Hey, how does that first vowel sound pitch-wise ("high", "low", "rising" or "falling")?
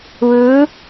rising